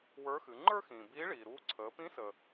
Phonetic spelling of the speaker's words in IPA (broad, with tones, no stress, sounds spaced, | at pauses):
w ə˞˧˥ x ɨ˩˧ ŋ͡ǃ ə˞˥ x ĩː˩ b iː˧˥ ɭ iː˩ ɾ uː˧ ǀʰ əː˩˧ p ĩ˧˥ s əː˩